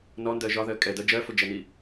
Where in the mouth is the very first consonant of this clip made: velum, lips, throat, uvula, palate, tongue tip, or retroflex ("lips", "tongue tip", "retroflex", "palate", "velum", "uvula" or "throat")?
tongue tip